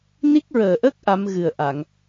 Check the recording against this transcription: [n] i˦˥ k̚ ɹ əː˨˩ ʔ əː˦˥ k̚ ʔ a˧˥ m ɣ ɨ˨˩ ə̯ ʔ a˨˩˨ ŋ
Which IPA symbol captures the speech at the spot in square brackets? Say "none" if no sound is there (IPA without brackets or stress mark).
n